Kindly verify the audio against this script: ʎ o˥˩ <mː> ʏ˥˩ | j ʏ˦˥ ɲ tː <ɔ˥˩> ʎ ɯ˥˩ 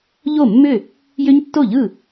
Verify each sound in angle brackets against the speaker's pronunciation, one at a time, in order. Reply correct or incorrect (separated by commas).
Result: correct, incorrect